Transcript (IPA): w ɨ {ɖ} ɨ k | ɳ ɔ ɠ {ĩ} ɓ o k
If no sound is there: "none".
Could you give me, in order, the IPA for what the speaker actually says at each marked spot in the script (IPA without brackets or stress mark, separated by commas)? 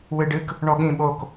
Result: ɖ, ĩ